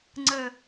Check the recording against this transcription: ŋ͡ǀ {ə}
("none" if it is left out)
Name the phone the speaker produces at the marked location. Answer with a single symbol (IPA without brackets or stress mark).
ə